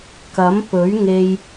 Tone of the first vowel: rising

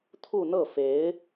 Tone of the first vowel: falling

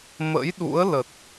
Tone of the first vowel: rising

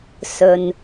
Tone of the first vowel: low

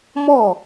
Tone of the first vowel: falling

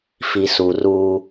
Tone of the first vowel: low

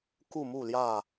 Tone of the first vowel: falling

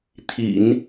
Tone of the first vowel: low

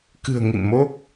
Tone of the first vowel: low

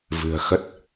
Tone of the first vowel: low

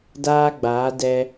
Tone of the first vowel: high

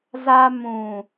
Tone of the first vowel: high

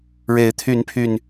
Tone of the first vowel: rising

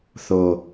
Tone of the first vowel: low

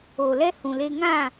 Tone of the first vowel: low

